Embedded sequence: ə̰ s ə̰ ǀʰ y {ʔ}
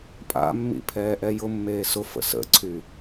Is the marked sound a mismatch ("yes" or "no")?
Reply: yes